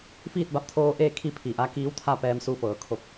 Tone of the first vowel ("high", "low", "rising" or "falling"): falling